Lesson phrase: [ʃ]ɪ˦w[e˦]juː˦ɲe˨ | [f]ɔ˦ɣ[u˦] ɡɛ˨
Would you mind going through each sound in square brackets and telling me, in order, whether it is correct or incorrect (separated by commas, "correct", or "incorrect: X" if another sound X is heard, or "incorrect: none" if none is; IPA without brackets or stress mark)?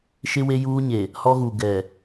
correct, correct, incorrect: h, incorrect: u˨